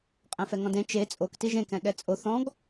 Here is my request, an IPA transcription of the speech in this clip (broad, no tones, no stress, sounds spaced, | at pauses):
qʼ ɛ̃ f ɛ ŋ ɔ̃ d ẽ t͡ʃ e t͡sʼ o k t i ʒ ẽ k ɛ̃ ɠ ɛ t͡sʼ o θ ɔ̃ ɡ